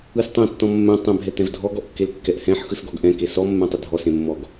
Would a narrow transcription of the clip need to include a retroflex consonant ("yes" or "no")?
no